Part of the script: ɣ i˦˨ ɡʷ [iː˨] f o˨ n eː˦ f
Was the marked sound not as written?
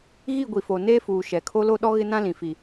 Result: yes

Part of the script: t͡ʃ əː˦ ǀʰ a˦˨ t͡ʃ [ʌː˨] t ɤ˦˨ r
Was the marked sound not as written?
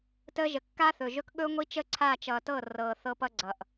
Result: no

